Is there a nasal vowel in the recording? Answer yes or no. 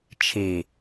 no